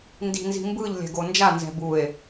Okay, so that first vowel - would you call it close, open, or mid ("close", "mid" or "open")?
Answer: close